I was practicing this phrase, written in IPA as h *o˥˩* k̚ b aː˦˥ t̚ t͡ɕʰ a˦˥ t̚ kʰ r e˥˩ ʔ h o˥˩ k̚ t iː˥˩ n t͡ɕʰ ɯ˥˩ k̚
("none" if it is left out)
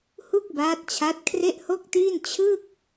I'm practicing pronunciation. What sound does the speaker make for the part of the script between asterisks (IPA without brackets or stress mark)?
u˥˩